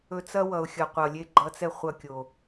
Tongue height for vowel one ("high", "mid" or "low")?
mid